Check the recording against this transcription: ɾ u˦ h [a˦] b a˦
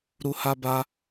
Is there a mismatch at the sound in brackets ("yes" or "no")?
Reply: no